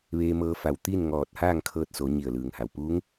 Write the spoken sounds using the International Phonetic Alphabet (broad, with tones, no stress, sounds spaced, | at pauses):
ʋ eː˧ m ɤː˧ f a˧˩ w t̪ iː˥˨ n ŋ ɔː˧˩ t̚ h aː˥˨ ŋ kʰ ɤː˧ t̚ s o˩˧ ɲ i˧˩ ə̯ l ɯː˩ ŋ h a˩ w p uː˧˥ ŋ